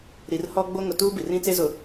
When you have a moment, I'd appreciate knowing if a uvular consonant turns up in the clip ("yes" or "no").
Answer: no